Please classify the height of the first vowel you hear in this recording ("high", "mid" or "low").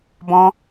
mid